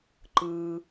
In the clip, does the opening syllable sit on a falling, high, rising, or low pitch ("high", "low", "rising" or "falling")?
low